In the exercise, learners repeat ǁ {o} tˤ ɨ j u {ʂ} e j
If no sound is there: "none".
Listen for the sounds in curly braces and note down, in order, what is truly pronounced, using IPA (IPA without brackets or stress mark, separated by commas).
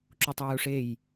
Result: u, ʂ